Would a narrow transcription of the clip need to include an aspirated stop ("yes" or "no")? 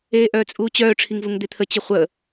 yes